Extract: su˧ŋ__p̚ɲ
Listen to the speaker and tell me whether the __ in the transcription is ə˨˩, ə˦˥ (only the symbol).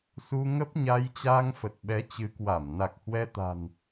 ə˦˥